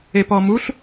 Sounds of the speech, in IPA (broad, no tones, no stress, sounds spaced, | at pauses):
e p ɔ m u ɬ